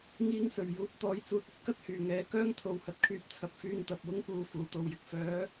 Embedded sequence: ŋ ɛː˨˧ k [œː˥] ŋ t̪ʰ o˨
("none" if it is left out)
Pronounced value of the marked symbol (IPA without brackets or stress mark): œː˥